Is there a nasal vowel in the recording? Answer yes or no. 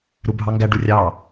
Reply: no